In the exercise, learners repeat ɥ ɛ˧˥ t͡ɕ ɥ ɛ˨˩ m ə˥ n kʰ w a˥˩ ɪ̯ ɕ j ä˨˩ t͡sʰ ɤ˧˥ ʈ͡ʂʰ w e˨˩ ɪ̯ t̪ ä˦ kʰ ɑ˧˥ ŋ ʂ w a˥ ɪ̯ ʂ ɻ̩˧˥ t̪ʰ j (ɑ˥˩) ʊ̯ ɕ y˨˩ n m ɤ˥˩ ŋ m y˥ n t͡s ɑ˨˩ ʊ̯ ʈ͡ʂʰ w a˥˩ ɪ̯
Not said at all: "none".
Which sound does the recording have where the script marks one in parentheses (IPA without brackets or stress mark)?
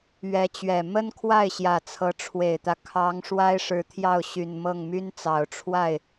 ɑ˥˩